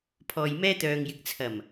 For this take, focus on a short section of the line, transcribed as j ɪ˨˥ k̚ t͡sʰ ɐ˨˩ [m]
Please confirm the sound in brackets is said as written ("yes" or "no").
yes